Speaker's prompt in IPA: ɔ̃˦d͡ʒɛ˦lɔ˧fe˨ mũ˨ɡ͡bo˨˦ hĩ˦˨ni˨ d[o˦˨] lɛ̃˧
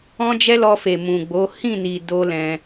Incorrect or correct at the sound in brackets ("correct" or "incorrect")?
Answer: incorrect